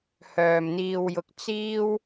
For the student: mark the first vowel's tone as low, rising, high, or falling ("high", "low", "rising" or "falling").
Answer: low